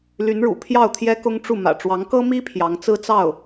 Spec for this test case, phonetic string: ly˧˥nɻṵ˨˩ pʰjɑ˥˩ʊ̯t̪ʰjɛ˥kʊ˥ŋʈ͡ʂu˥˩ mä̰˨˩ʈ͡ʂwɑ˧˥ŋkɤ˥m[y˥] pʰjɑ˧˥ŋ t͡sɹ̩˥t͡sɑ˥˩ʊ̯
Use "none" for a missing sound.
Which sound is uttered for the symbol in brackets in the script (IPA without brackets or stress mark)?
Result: i˥